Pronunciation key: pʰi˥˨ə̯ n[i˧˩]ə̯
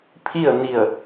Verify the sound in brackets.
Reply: correct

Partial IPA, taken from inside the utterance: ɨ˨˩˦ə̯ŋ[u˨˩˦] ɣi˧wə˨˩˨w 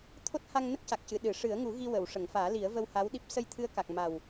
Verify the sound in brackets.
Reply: correct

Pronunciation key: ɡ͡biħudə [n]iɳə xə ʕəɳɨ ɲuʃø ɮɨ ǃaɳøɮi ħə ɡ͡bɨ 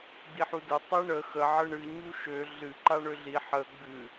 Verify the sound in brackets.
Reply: incorrect: tˤ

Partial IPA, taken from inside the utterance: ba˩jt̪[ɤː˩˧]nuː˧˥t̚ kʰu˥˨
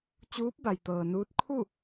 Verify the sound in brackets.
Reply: incorrect: ɤː˩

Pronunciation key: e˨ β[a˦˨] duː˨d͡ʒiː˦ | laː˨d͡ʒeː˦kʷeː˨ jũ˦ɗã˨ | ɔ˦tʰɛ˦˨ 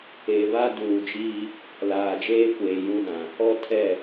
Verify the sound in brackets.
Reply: incorrect: a˦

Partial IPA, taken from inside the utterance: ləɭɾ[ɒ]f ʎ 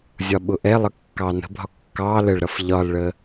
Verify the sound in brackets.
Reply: incorrect: ʌ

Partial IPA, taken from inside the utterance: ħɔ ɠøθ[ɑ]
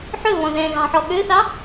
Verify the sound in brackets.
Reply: correct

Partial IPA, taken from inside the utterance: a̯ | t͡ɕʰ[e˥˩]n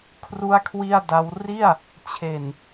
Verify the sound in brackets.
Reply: incorrect: e˨˩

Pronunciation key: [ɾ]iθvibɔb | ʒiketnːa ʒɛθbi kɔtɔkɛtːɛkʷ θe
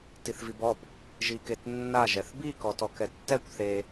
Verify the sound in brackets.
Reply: incorrect: t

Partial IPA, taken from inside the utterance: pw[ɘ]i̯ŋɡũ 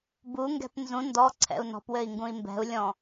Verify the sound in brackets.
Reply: correct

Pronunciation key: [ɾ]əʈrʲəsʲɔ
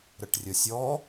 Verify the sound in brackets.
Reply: correct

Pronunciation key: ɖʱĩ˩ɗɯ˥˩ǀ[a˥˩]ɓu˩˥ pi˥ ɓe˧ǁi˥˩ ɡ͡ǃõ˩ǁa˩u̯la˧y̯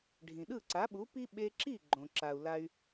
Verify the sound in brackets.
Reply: incorrect: a˩˥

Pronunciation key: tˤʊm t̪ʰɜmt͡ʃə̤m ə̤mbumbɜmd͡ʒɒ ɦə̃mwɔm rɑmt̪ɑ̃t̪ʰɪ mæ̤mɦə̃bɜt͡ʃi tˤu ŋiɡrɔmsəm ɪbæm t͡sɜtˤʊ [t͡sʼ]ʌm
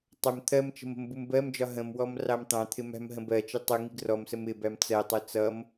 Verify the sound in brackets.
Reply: incorrect: t͡s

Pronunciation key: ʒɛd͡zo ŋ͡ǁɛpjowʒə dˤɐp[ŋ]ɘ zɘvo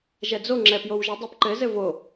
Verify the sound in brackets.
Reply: incorrect: ǃ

